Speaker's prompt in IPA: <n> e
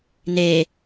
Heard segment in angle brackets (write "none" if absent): n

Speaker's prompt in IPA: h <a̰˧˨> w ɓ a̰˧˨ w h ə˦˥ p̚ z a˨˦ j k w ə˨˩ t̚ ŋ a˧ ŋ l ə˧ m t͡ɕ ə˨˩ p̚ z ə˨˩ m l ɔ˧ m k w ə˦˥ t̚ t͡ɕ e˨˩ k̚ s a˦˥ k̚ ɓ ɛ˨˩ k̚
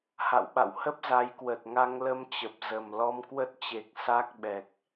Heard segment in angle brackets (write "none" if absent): a̰˧˨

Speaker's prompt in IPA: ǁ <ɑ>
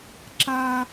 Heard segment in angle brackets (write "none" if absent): a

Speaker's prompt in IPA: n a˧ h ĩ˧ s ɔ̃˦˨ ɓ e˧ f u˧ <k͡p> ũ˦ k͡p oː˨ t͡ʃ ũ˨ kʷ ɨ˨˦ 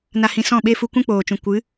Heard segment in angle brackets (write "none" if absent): kʷ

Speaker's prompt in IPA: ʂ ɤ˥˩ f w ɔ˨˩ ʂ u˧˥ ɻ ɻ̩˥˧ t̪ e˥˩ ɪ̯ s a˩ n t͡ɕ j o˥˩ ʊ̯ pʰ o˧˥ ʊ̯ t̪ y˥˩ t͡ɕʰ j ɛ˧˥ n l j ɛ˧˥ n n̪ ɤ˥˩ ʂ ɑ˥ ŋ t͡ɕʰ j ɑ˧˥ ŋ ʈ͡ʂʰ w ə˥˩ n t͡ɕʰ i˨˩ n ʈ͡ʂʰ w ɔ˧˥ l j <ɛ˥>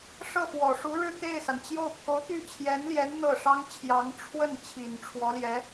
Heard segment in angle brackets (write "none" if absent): ɛ˧˥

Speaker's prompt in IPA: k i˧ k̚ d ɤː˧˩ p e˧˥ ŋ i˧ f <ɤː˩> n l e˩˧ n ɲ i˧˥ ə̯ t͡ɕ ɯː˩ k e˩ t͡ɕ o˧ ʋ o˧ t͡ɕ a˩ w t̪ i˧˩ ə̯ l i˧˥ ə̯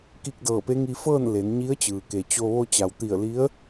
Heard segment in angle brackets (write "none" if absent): ɤː˥˨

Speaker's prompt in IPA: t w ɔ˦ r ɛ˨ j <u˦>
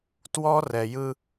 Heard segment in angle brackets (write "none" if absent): ɯ˦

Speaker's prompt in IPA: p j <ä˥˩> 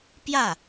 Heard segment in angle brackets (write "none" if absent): ä˥˩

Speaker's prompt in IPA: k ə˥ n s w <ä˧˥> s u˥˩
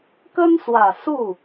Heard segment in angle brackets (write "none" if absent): ä˨˩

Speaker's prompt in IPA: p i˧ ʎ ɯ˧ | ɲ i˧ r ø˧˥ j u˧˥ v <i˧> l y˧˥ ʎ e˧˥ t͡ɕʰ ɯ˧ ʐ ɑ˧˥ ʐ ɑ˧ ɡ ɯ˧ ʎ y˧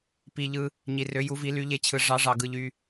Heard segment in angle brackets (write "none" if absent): i˧˥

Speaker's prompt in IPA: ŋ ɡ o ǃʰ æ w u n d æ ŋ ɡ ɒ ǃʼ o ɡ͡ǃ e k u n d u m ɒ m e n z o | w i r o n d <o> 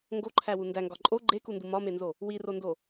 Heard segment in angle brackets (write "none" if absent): o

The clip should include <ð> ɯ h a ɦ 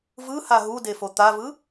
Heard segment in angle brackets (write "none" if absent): v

